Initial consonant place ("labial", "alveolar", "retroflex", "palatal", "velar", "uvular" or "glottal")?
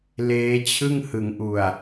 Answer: alveolar